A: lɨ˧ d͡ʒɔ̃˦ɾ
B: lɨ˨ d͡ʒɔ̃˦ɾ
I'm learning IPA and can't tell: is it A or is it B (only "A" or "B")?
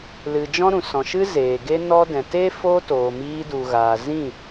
B